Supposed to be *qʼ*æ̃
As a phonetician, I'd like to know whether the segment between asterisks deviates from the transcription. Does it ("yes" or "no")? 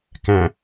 yes